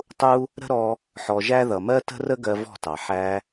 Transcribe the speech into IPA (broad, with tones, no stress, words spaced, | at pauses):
tˤu˦ | ɾə̤˦ɾɔ˧ | ħɔ˧ʒæ˦ ðʌ˨mɜ˦tə̤˦rə˦ ɡɜ˧vɔ̤˦˨tɑ˨ ħæ˧